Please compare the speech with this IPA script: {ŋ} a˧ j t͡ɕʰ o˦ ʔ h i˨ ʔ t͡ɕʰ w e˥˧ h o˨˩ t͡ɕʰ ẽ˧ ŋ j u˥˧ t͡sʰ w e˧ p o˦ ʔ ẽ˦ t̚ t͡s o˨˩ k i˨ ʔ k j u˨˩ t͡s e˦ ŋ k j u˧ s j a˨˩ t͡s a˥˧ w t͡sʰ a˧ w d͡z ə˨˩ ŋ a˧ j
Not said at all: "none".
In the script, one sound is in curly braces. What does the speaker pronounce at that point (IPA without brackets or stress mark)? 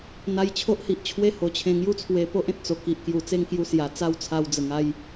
n̪